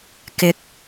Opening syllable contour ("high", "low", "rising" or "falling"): rising